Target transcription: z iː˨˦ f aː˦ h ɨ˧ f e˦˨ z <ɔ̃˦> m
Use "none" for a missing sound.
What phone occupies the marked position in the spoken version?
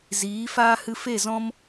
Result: ɔ̃˦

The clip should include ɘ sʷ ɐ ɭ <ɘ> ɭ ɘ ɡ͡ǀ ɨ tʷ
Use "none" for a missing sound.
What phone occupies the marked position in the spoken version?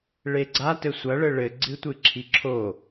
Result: ɘ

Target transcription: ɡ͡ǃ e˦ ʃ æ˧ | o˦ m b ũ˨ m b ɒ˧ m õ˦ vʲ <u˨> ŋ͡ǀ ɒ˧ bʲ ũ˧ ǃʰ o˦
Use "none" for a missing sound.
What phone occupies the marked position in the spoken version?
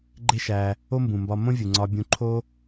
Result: u˨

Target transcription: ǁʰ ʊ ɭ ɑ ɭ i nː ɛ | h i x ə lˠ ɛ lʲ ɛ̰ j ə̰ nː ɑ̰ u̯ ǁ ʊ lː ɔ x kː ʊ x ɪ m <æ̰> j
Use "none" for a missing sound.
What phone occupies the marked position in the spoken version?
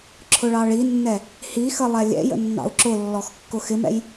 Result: ɛ̰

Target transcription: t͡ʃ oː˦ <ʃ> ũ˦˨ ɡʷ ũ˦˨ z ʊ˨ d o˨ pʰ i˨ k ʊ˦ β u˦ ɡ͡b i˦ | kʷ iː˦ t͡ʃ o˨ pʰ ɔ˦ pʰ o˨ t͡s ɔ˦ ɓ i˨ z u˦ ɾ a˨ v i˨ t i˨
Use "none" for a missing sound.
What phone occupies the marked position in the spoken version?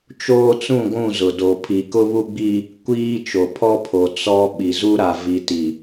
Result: t͡s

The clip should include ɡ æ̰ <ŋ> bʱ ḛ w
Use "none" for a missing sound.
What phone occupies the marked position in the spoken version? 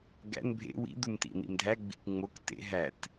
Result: n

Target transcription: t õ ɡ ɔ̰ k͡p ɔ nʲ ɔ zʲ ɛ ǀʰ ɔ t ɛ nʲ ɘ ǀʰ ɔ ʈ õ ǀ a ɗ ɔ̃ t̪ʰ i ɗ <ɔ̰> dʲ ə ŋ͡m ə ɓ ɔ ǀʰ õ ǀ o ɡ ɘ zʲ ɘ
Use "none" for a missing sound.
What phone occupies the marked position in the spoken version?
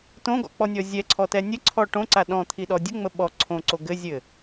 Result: ɔ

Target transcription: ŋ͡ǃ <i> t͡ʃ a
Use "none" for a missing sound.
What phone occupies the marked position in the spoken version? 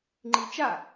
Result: i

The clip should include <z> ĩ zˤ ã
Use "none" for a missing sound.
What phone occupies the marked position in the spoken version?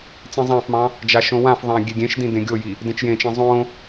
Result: t͡s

